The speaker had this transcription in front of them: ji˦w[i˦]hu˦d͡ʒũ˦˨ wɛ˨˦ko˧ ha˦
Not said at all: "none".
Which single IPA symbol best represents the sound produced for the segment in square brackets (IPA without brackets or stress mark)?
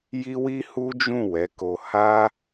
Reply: i˦